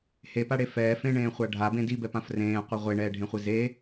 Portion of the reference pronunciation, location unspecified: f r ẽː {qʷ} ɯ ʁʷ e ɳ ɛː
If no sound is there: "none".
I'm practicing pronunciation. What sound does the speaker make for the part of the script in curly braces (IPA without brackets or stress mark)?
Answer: qʷ